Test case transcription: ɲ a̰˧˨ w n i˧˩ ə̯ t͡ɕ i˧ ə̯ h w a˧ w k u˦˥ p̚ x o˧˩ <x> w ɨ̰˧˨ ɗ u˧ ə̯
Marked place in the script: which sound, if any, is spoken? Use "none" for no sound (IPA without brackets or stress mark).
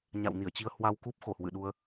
h